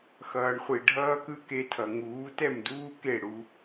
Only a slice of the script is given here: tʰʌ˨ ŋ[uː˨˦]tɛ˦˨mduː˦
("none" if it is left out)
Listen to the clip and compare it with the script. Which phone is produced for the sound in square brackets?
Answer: uː˨˦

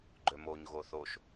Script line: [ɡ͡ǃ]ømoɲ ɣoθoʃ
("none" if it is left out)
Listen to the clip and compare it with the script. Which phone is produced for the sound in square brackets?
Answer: ɡ͡ǃ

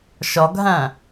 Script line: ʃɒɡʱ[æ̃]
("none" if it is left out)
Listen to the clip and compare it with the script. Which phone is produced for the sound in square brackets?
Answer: æ̃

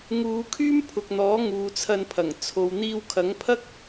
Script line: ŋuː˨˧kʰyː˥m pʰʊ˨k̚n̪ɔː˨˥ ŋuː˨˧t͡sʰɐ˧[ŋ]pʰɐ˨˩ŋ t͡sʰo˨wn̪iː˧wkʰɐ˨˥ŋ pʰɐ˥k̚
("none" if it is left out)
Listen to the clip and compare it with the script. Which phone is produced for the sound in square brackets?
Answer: n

